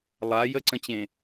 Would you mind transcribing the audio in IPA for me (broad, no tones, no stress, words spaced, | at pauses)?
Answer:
lˠa jəǀə̃t͡ɕẽ